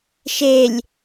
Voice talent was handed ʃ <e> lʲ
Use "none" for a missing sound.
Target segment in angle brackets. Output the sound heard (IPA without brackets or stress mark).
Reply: e